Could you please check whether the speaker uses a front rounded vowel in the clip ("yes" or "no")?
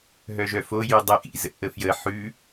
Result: yes